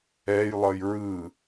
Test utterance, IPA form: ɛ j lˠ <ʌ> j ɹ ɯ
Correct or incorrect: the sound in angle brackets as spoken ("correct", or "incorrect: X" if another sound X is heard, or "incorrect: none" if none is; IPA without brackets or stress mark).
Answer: correct